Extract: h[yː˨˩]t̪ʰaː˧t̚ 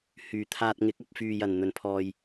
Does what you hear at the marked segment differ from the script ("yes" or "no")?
no